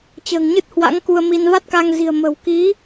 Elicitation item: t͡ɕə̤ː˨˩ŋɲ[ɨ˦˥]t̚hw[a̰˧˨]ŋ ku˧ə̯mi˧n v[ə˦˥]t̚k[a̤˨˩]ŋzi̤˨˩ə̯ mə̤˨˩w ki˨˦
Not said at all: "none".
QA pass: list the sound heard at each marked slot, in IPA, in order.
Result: ɨ˦˥, a̰˧˥, a˦˥, a˧

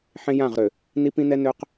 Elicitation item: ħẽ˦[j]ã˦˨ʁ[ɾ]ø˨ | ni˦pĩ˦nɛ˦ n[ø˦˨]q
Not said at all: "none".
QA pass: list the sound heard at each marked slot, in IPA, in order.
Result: j, ɾ, ø˦

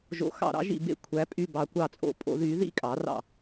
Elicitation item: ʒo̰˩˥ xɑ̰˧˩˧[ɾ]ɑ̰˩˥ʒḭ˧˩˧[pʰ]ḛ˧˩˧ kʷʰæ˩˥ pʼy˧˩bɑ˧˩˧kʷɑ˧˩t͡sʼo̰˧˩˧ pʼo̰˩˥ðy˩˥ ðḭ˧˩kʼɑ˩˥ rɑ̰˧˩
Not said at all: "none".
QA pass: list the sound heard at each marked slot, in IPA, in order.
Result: ɾ, b

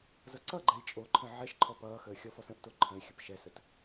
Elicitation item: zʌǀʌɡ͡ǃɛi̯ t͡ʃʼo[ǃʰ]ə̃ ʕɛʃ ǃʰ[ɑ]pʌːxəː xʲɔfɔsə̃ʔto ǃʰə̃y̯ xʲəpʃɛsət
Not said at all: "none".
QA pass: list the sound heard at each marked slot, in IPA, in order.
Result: ǃʰ, ɔ

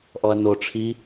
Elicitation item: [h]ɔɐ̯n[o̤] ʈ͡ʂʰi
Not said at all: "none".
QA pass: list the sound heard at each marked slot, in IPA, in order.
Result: ʔ, o

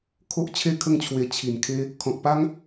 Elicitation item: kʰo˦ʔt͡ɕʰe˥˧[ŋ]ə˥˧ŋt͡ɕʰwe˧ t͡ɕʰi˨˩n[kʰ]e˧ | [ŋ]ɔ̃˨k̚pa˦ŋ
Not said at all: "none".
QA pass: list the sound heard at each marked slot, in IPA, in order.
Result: kʰ, kʰ, kʰ

